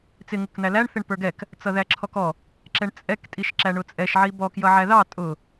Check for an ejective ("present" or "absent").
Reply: present